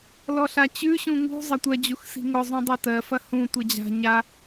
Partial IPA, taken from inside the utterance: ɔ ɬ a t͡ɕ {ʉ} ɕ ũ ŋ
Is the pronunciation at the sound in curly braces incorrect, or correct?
correct